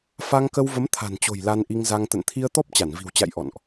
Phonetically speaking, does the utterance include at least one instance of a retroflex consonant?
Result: no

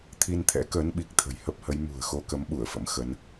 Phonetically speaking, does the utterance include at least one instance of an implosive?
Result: yes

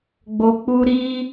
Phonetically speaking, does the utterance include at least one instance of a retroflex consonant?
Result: no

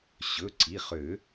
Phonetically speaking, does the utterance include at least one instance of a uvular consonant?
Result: yes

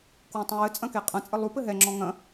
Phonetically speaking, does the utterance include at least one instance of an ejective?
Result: yes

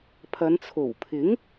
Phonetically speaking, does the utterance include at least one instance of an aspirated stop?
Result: yes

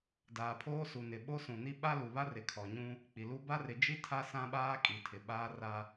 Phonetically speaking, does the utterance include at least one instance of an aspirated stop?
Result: yes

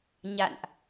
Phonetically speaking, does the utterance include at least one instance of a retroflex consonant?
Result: no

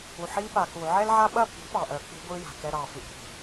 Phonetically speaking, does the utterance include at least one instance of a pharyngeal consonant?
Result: yes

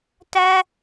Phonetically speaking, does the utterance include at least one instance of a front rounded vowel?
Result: no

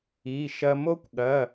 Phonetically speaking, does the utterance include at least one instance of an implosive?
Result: yes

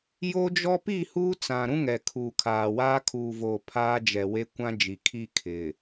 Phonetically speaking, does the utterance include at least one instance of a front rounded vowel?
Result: no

